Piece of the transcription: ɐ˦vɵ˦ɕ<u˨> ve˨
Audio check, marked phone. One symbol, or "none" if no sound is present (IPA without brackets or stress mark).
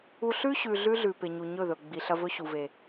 u˨